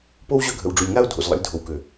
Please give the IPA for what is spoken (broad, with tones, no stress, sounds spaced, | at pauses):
p o˦ w ʑ ø˦ ɡʱ ə̰˨ w ɖ͡ʐ u˨ lʲ ŋ a˦ ʊ̯ dʱ o̰˨ z lˠ ə̰˨˦ lʲ dʱ o˨ w k ø˨